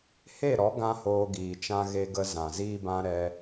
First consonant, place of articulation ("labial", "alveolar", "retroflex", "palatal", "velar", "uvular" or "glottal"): glottal